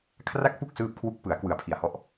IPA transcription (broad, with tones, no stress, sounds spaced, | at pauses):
kʰ r a˥˩ k̚ p u˥˩ k̚ s ɯː˥˩ p̚ kʰ w u˥˩ k̚ p ɯ˩˦ a̯ k w ɯ˩˦ a̯ pʰ i˨˩ a̯ h ɔ˦˥ ʔ